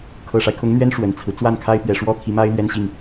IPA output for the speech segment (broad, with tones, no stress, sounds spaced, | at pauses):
kʰ ɤ˨˩ ʂ a˦ ɪ̯ kʰ ʊ˧˥ ŋ n̪ ɥ ɛ˥ n ʂ w ə˨˩ n t͡sʰ ɹ̩˦ t͡s w a˥˩ n kʰ a˥ ɪ̯ p ɥ ɛ˨˩ ʂ w ɔ˥ t̪ʰ i˧˥ m a˥ ɪ̯ l ɥ ɛ˥ n ɕ i˥˩ ŋ